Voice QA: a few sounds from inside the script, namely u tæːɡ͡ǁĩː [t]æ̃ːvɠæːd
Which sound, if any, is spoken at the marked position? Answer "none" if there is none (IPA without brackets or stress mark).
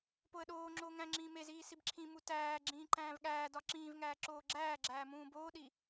ǃ